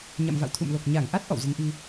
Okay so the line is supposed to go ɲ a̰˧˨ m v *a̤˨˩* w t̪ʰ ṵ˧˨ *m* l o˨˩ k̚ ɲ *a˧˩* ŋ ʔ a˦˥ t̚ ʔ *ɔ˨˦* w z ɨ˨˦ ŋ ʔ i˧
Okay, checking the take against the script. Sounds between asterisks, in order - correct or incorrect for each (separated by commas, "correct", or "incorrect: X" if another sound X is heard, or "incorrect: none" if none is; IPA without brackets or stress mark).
incorrect: a̰˧˨, correct, correct, incorrect: ɔ̰˧˨